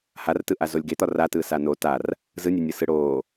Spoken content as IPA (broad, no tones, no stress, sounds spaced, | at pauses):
h a r t ɯ ʔ a z o lʲ ɡ e t̪ ɒ r a t ɯː s a n o t a r | z ɯ nʲ e nʲ ɯ s ɯ ɽ oː